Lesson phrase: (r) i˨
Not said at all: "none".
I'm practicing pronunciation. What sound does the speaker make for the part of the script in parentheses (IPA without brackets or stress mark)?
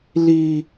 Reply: l